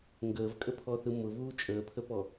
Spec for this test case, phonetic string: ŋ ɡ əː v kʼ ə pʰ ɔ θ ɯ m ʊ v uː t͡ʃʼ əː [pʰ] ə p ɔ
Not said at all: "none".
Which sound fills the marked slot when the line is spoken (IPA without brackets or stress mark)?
pʰ